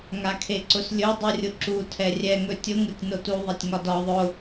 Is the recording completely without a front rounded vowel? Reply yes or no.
yes